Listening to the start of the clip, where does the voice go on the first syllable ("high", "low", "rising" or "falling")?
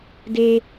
high